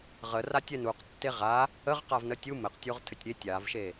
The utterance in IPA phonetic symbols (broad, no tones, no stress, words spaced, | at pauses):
ʁəratʲ ɛnuq tːeʁa | əʁqavnə tʲu mɘqtʲoʁ tʰɘtʲɾʲe tʲavʃe